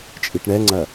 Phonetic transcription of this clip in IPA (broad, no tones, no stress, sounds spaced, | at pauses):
t͡ʃʼ i ʈ ɳ ɛ ŋ͡ǀ ɐ